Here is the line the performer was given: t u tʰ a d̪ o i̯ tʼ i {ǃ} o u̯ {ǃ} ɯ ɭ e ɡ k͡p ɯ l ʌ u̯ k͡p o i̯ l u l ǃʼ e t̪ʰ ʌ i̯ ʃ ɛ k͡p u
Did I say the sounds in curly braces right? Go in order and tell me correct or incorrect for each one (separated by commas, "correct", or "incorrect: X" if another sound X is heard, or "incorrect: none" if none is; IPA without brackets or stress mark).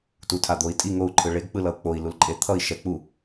incorrect: ŋ, incorrect: ǃʰ